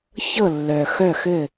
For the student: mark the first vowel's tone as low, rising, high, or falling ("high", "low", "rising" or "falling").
falling